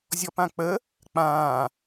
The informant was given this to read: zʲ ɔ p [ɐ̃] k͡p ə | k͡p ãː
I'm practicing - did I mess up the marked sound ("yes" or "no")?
yes